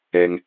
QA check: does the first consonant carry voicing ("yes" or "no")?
yes